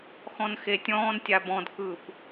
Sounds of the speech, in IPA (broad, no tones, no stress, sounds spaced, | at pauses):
x ɔ̃ n x e tʲ ɔ̃ː n tʲ a b ɔ̃ d k ɯː p